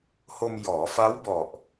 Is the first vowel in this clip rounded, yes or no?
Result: yes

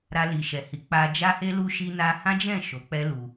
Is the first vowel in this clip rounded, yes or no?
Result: no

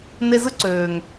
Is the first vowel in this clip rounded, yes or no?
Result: no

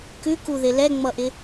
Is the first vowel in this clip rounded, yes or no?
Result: yes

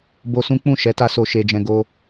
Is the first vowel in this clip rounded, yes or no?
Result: yes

